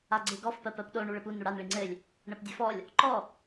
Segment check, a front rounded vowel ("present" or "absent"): absent